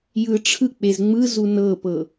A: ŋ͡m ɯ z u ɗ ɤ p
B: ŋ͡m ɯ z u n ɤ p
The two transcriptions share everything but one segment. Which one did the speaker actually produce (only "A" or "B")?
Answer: B